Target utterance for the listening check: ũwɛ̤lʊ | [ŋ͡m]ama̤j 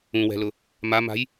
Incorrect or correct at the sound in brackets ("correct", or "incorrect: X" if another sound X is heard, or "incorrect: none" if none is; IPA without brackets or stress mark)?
incorrect: m